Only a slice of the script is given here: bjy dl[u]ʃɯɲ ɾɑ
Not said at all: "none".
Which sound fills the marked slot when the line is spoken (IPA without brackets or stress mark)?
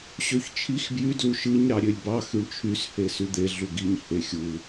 u